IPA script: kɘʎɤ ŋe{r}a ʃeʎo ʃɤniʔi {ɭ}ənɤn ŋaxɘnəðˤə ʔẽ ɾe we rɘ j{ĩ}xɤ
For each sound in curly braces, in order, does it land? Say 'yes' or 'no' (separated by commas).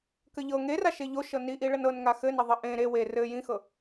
yes, yes, yes